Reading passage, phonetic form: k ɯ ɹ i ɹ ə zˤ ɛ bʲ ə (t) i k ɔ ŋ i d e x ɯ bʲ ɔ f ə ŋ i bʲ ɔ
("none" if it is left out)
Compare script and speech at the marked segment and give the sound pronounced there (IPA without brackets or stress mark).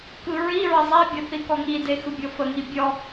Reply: θ